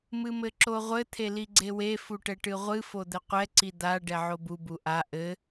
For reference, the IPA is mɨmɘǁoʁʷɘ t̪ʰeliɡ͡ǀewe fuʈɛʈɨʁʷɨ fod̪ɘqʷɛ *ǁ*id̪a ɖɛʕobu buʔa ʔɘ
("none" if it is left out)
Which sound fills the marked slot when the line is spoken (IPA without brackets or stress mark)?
ǀ